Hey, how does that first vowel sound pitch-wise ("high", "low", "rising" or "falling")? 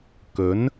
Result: rising